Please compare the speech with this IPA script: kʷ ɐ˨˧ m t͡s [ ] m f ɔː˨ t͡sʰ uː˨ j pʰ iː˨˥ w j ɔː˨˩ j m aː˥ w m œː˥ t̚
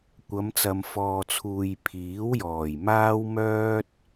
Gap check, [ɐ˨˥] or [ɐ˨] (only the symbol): ɐ˨